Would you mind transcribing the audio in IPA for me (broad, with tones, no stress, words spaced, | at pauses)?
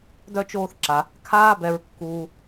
dœ˥t͡ʃoː˦θ ǁa˨ | kʰaː˦bɛ˨ɹkːuː˨